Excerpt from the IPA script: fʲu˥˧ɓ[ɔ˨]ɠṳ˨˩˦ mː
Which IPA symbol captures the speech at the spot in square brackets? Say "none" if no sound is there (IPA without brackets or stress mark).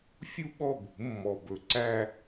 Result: ɔ˥˩